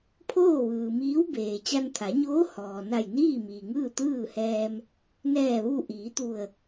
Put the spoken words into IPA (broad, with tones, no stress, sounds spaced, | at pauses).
pʰ oː˥˨ ʋ ɯː˩ m iː˧˥ w b eː˩ t͡ɕ a˧ n t̪ʰ a˩˧ ɲ oː˧˥ h ɔː˩ n a˧˩ j n iː˥˨ m iː˩ ŋ ɯː˥˨ t̪ ɯː˥˨ h ɛː˧ m | n ɛː˧˩ ʋ u˧˩ ʔ iː˩˧ t̪ u˧˩ ə̯